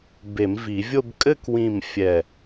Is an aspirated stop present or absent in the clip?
absent